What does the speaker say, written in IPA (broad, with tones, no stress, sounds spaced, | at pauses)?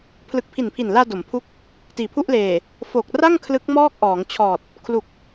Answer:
pʰ l ɯ˨˩ k̚ pʰ i˨˩ n pʰ i˨˩ n l aː˧ d o˩˦ m pʰ u˦˥ k̚ | t iː˨˩ pʰ u˥˩ ʔ l eː˨˩ | f o˨˩ k̚ r a˥˩ ŋ kʰ l ɯ˦˥ k̚ m ɔː˥˩ k̚ ʔ ɔː˩˦ ŋ t͡ɕʰ ɔː˨˩ t̚ | kʰ l u˨˩ k̚